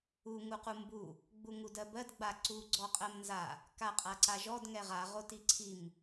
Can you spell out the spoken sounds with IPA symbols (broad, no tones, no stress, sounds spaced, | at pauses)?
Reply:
u ŋ u q u m b u | ɡ͡b u ŋ u d ɜ b ɜ d ɡ͡b a ǀ u ɡ͡ǀ ɔ qʼ ɜ m n z a | k a qʼ a ǀ a ʒ ɔ d ŋ ɛ ʁ a ʁ o t i ǀʰ i m